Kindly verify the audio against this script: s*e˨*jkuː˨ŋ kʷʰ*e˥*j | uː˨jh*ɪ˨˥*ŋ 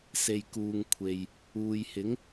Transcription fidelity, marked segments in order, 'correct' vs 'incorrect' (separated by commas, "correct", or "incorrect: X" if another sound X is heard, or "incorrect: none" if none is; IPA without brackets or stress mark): correct, incorrect: e˨, correct